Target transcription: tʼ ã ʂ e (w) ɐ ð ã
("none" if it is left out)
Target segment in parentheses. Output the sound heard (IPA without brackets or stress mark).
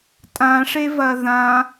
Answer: v